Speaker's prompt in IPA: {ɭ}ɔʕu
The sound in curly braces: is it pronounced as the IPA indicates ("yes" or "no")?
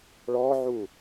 yes